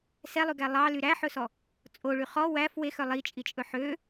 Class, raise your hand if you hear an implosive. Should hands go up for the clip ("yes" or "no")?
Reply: no